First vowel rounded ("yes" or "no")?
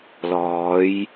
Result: yes